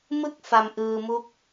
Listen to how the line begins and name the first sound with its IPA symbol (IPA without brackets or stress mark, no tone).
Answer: m